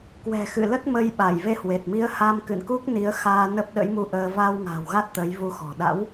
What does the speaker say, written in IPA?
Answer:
k w ɛ̤˨˩ x ɨ̰˧˨ l ə˦˥ t̚ m ə˧ j ɓ a˧˩ j v e˧ h w e˨˩ t̚ m i˨˦ ə̯ h a˧ m k ɨ̰˧˨ n k u˦˥ k̚ n i˨˦ ə̯ x aː˧ n ə˦˥ p̚ ɗ ə̰˧˥ j m u˧ ʔ əː˧ v a˧ w ŋ a̤˨˩ w ɣ a˦˥ t̚ t̪ ə˨˦ j v u˧ x ɔ̤˨˩ ɗ a̰˧˥ w

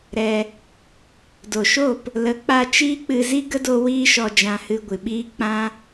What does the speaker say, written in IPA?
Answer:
ɾ ɛ˧ | d o˨ ʃ o˦˨ p | l ə˨˦ k͡p a˧ t͡ʃ iː˦ k͡p ɨ˧ z i˦ ɡ ə˦ d o˧ w iː˦ ʃ ɔ˧ d͡ʒ ã˧ h ɨ˧ ɡʷ ɨ˨ ɓ iː˦ k͡p ã˦

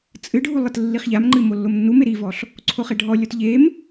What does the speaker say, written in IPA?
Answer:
t͡sʼ ɨ ɖʱ u lˠ ɘ t lː i χ ʎ a m ŋ͡ǃ ɨ m o lː o m nː u m e ɾ i v ɔ ɬ | ǀʰ o χ e ɖʱ ɔ lʲ ɔ t ʎ e m

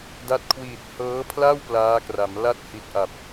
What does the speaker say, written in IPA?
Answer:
d a˦˥ t̚ kʰ w iː˨˩ t̚ h ɤː˦˥ pʰ l a˥˩ w p l aː˦˥ k r a˩˦ m l a˥˩ t̚ h i˨˩ t̚ ʔ a˨˩ p̚

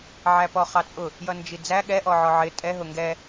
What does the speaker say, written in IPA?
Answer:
ʕ æ p ɔ χ ɑ t͡sʼ ʊ | j ʌ n d͡ʒ i d͡z æ ɠ ɛ ʔ ɔ ʕ ɔ ʕ ɪ tʼ ɛ ɦ ʊ ŋ ɡ ɛ

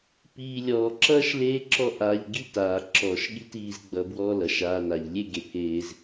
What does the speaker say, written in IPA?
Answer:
p iː˧ lʲ ɔː˨ ǁ ʌː˦ ʃ l eː˦ ǁ ɔ˦ ʔ aː˧ ʎ ɡ i˦ t aː˨ ǁ ɔː˨ ʃ ɠ i˦ t iː˧ z ɡ͡b ʌ˧ b w ɔ˦ l ʌ˨ ʃ aː˧ n a˨ ʎ lʲ e˦ ɡ e˨ pʰ eː˧ z

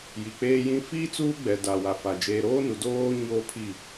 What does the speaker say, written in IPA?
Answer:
j i˨ k͡p eː˦ j ĩ˦ f iː˦ t͡s uː˦ ɡ͡b ɛ˨ d a˨ w a˨ f a˨ d͡ʒ eː˨ ɾ oː˦ n u˨ d oː˦ ɲ oː˦ pʰ i˦˨

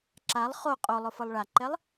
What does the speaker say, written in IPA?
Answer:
ǁ a lˠ χ o qʼ o lˠ ʊ f ɤ lˠ ɭ a ǃ ɛ lˠ

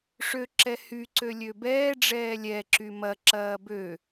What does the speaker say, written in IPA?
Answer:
ʂ ø ǁ ɛ h y ǀ ø lʲ ø b ɛː ɖ͡ʐ ɛː lʲ ɛ ǁ y m ɐ ǁ ɐː b ø

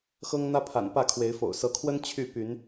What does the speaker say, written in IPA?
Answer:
x ɤ˦ ŋ n̪ ä˦ pʰ a̰˨˩ n p ä˥˨ kʰ w e˨˦ ɪ̯ f o̰˨˩ ʊ̯ s ɤ˨˦ kʰ w ə˦ n t͡ɕʰ y˥˨ p y˨˦ n

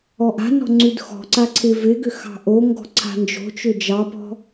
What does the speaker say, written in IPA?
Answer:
ɔ ʔ a̤ n ɔ̤ ŋ͡ǀ ʉ d x ɔ̤ ǀ a ǀʰ ɪ v ɪ ɡ ʏ x ɑ̤ ʔ o ŋ ɡ ɔ̤ ǀʰ a̤ n d͡ʒ o̤ t͡ʃ ʏ d͡ʒ ɑ p ɔ̤

